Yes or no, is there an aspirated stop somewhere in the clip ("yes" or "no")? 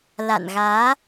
no